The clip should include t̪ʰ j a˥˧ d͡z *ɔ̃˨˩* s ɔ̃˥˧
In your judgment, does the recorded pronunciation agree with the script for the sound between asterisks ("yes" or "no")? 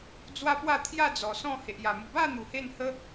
no